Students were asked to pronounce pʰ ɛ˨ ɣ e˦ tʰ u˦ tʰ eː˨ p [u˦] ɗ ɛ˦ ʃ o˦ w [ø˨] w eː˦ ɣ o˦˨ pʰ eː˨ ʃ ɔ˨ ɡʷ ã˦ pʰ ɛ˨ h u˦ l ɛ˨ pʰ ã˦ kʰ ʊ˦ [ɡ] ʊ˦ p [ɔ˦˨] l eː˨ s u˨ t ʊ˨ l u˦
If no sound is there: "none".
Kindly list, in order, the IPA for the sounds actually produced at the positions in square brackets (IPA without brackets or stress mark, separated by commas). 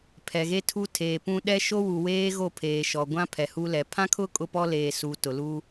ũ˦, u˨, kʼ, ɔ˦